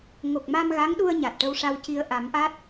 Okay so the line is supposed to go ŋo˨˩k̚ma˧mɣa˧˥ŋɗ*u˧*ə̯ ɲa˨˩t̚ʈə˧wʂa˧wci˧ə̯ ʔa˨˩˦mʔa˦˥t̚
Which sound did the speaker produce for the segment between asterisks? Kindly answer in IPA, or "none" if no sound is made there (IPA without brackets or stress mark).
u˧